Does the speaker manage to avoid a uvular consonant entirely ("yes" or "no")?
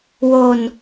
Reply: yes